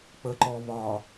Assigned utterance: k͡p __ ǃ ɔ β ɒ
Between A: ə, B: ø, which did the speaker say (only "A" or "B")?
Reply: A